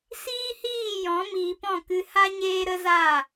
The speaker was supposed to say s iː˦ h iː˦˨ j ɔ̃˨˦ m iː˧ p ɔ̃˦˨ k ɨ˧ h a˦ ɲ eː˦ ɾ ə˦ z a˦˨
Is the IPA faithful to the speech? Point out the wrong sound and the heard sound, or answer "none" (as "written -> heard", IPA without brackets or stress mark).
none